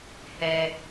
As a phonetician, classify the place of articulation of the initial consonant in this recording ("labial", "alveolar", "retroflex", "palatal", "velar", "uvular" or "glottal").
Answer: glottal